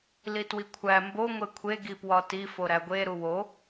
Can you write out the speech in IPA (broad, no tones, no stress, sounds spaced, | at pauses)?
l i t w i kʷʰ æ m b o ŋʷ e kʷʰ e ɡ i p w ɒ t i f o ɾ æ ɡʷ e ɾ u w o